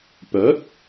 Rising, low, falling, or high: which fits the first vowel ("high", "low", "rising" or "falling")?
rising